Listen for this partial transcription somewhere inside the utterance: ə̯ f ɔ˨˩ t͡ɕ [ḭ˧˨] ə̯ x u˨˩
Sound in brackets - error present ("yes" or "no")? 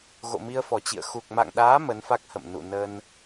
no